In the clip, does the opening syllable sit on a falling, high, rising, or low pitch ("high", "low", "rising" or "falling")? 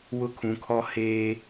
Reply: high